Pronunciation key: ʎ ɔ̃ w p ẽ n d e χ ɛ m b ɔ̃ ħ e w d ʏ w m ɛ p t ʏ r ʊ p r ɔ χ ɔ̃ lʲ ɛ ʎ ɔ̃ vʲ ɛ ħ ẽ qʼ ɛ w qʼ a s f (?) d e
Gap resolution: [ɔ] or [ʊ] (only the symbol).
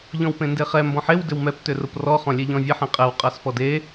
ɔ